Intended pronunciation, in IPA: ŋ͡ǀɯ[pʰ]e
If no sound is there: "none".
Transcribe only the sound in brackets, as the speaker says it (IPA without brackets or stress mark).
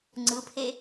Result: pʰ